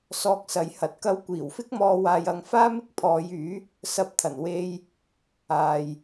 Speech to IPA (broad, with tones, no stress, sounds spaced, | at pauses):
s ɔː˧ k̚ s ɐ˨˧ j h ɐ˨ t̚ k ɐ˥ w kʷ iː˨˩ w f ɪ˥ k̚ m ɔː˧ w aː˧ j ɐ˧ ŋ f aː˥ m ɪ˥ k̚ pʰ ɔː˨˧ j yː˨˥ | s ɐ˥ p̚ t̪ʰ ɐ˨˩ n w e˥ j | aː˨ j